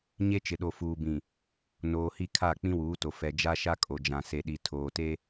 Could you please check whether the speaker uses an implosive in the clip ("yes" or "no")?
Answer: yes